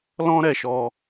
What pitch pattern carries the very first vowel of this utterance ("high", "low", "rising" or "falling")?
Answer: high